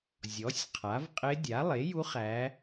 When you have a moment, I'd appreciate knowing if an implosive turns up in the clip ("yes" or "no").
no